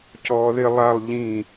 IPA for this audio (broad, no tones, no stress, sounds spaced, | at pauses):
c ɔː ð ɪ lˠ a lˠ ʎ ĩ